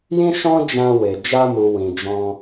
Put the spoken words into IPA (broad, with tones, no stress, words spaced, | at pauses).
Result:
jĩ˦ʃɔ̃˦ d͡ʒã˧we˨ d͡ʒa˧mu˨wĩ˨ d͡ʒɔ̃˧